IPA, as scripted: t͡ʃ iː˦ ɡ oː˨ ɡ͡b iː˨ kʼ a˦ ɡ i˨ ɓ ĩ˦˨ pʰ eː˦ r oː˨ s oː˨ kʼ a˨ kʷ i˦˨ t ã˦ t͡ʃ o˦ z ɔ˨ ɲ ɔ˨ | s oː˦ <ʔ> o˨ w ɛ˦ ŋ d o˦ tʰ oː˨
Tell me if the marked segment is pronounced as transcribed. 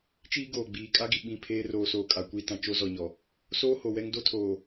no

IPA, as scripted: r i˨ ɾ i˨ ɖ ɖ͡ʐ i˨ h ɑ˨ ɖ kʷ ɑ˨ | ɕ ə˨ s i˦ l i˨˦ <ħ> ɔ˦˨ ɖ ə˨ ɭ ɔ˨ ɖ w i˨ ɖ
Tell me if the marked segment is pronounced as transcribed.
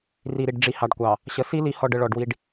no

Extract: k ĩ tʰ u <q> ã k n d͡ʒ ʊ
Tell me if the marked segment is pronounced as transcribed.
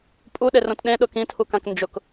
no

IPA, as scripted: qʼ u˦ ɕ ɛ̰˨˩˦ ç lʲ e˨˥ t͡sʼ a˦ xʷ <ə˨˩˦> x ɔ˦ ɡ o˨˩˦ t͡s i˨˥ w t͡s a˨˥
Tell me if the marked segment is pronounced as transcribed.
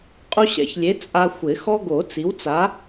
no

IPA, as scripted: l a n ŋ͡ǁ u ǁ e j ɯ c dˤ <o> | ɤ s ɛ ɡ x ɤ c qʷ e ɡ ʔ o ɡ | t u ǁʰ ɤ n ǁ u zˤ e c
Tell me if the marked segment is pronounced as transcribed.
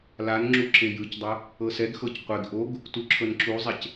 yes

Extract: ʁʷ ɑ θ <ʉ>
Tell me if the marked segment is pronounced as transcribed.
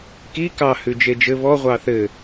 no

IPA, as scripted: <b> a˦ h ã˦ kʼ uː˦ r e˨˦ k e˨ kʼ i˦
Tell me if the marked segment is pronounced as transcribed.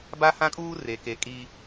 yes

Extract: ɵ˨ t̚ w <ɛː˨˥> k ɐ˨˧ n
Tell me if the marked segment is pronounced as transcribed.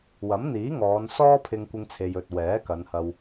yes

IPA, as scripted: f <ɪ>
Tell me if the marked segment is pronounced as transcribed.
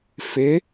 yes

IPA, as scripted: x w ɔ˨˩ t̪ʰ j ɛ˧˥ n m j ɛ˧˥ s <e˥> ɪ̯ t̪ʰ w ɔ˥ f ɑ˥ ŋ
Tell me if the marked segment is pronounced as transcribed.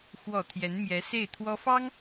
no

